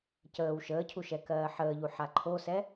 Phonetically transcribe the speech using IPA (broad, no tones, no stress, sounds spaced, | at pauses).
c əː w ʃ əː cʰ u ʃ ɛ k ɜː ħ əː ʎ u ħ a ǃʰ o s ɛ